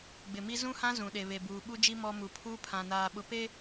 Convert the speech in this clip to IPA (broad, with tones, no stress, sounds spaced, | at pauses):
ɡ͡b ɪ˨ m i˦ z ũ˦ h ã˦ z ũ˨ ɗ e˨ β e˨ b uː˨ ɓ u˦ d͡ʒ i˦ m ɔ˦ m u˨ pʰ uː˦ pʰ ã˨ n aː˨ ɓ ʊ˨ p e˦